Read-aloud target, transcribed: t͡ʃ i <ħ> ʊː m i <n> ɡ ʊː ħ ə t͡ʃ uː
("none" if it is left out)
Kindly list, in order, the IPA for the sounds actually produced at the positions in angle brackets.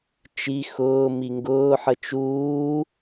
x, ŋ

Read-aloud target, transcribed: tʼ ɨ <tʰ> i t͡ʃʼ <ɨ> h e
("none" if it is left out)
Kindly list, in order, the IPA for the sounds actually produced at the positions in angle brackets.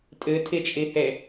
tʰ, i

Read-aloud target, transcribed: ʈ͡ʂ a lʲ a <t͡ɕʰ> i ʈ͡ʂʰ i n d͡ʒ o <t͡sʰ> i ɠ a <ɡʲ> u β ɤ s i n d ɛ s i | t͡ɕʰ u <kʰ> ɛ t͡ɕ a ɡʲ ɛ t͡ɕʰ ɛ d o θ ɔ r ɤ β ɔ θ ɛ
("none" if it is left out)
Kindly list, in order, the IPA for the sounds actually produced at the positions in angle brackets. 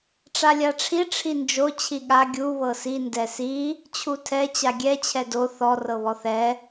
ʈ͡ʂʰ, t͡ɕʰ, ɡʲ, tʰ

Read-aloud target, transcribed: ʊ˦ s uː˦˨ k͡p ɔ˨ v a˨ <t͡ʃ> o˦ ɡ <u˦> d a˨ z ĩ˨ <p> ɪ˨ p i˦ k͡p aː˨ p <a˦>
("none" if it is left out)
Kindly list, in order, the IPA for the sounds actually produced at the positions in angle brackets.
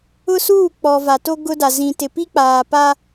t, ʊ˦, t, a˦

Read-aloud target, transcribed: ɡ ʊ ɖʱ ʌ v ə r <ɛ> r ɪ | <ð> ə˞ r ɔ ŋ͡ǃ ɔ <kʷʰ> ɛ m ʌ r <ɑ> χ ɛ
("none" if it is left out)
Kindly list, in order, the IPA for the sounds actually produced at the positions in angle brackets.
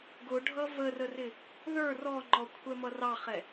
ə, ð, kʷʰ, ɑ

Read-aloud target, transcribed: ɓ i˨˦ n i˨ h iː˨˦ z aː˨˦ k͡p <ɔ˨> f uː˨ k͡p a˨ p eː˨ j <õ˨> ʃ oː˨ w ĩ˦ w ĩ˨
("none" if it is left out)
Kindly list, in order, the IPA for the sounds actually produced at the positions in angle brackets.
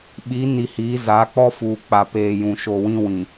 ɔ˦, ũ˨

